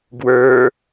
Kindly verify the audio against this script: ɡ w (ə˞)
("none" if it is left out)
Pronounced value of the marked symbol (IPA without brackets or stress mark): ə˞